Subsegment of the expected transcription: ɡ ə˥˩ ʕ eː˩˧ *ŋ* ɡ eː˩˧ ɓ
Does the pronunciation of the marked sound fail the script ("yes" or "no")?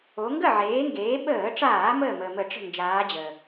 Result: no